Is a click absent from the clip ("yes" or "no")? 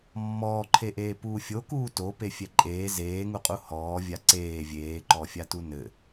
no